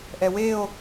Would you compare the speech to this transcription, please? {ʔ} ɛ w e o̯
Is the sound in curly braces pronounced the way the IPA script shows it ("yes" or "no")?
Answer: yes